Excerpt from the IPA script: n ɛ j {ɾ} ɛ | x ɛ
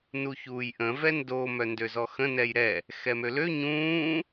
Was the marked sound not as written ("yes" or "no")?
no